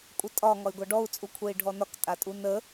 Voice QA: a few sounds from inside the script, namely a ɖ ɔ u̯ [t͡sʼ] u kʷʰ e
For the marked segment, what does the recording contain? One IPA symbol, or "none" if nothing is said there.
t͡sʼ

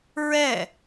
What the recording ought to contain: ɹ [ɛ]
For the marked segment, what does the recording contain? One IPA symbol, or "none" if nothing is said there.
ɛ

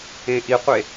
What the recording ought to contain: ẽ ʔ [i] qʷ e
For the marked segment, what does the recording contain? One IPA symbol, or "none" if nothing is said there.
i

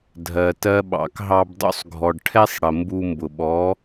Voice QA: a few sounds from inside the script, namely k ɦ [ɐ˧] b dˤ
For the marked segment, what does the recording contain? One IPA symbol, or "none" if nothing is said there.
ɑ˧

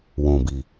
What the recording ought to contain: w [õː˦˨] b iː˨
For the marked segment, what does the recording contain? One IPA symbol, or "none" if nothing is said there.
õː˨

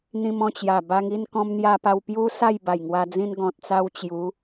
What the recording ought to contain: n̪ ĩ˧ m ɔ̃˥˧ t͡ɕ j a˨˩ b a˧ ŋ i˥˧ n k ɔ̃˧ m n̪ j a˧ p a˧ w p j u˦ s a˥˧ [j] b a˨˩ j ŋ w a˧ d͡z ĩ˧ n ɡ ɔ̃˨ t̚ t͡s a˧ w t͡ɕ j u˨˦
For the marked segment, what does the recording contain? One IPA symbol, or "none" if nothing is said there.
j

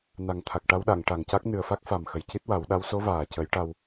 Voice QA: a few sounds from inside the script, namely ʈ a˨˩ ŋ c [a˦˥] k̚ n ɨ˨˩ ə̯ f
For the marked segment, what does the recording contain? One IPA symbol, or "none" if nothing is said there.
a˦˥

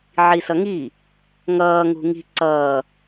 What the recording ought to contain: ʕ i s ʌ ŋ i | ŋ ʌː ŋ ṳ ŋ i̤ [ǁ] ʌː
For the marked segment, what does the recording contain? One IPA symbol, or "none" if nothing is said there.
ǀ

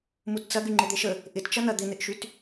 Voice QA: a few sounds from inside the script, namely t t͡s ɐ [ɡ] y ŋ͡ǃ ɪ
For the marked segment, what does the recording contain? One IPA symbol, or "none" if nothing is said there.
ɡ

